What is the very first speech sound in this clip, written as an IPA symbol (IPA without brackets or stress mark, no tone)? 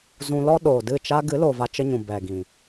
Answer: z